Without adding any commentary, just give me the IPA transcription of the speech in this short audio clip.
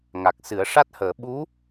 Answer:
ŋ a˨˩ k̚ s ɨ˨˩˦ ə̯ ʂ a˦˥ t̚ h əː˨˩˦ ɓ u˧˥

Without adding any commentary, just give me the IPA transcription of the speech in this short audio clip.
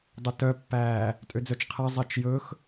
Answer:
dˤ ɵ t œ pː æː | tʼ ø d͡z œ t͡ʃ qʰ æ zˤ ɛ t͡ʃ j ɵ x

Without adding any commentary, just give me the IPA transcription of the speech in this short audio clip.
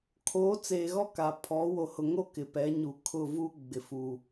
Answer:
kʰ oː˨˦ t͡s eː˨ ɣ ɔ˦ k a˨ pʰ ɔ˨˦ w o˨ h ʊ˨ ŋ o˦ k ɪ˨ p ɛ˨˦ ɲ u˨ kʰ ʊ˦˨ v u˦ ɡ͡b ɪ˨ f uː˨

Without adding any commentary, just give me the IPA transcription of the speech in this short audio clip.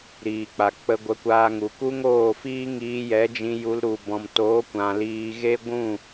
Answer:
ɾ iː˨ k͡p a˨ k͡p ə˧ ɡʷ ə˨˦ kʷ aː˧ ŋ u˨ k u˦ ŋ oː˦˨ f iː˦ ŋ iː˧ j ɛ˨˦ d͡ʒ ĩ˧ j u˧ l ɾ u˨ b ɔ̃˨ m t oː˨˦ kʷ ã˨ l iː˧ ɣ e˦ ɡʷ ũ˦˨

